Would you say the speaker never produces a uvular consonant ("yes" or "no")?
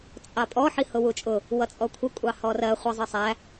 no